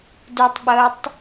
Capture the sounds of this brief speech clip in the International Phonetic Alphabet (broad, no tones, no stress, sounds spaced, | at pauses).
d u tˤ ɓ əː tˤ